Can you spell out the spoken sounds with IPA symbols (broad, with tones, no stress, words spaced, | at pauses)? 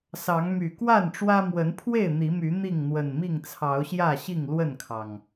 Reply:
sɑ˨˦ŋ my˨˩kwa˥˨nʈ͡ʂwä˦mwə˨˦n pʰwe˥˨ɪ̯ n̪i˨˦my˨˦ n̪i˥˨ŋn̪wə˨˩nmi˥˨ŋ t͡sʰɑ˨˦ʊ̯ɕjä˥˨ɕi˥˨ŋ lwə˥˨nkʰɑ˩ŋ